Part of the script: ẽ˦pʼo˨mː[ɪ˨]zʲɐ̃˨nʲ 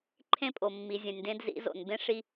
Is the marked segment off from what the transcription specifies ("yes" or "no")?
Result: yes